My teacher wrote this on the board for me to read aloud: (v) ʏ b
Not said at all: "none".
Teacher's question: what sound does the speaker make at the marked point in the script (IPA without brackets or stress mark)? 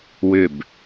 w